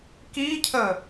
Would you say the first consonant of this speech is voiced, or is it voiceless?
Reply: voiceless